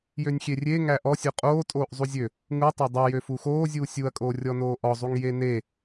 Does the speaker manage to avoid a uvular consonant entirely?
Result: no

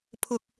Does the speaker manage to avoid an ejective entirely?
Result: yes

